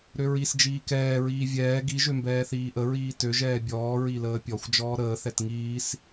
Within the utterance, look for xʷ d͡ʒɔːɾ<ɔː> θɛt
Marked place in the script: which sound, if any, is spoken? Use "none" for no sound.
əː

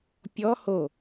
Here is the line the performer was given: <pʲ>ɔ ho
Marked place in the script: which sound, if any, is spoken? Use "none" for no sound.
pʲ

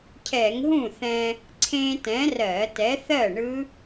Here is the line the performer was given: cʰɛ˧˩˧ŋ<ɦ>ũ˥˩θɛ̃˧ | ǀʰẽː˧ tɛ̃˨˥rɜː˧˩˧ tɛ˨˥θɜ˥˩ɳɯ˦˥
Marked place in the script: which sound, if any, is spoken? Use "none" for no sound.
ɦ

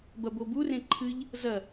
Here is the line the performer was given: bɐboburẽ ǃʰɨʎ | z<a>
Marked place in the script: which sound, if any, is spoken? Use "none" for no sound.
ɐ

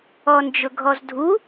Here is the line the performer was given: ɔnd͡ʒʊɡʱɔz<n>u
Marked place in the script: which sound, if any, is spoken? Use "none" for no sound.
dʱ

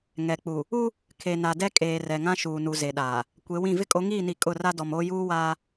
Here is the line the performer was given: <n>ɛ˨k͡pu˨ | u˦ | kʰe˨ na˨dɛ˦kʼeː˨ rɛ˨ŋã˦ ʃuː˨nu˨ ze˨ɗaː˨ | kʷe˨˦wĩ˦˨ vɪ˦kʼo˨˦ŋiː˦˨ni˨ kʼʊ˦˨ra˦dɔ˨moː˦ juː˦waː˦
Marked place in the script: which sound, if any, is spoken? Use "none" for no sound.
ŋ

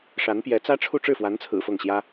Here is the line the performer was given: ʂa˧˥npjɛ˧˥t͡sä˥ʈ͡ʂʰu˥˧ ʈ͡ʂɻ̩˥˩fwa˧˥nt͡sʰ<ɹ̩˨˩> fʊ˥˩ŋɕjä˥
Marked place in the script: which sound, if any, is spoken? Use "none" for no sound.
ɹ̩˨˩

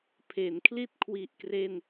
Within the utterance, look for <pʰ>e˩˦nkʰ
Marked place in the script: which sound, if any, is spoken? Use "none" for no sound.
pʰ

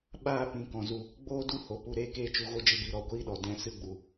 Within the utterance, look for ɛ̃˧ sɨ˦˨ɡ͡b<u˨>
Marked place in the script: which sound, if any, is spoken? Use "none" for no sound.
u˨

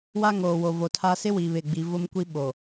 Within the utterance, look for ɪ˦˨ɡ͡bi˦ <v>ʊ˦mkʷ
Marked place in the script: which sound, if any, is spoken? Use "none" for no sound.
v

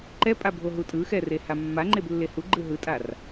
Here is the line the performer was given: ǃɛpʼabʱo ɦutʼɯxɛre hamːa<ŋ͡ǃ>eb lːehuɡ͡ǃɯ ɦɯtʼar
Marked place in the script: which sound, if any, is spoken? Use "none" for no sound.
ŋ͡ǃ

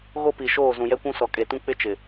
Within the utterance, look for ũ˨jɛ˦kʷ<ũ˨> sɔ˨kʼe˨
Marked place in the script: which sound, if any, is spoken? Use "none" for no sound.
ũ˦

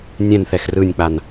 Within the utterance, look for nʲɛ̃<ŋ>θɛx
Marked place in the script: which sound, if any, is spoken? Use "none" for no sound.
n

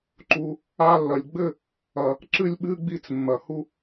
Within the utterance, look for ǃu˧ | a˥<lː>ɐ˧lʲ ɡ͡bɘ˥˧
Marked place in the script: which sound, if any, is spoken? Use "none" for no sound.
lː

